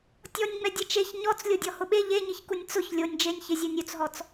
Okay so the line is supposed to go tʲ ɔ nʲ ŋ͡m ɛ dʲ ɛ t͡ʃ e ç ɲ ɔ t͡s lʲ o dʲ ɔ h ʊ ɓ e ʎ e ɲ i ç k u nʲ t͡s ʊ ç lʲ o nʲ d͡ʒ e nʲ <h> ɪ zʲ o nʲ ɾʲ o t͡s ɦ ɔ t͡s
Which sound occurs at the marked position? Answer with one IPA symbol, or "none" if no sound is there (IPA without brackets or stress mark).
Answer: ç